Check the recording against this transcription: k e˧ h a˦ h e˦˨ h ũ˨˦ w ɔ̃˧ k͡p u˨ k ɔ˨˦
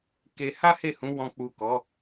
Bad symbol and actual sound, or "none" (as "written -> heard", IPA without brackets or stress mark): none